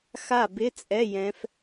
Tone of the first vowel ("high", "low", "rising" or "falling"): falling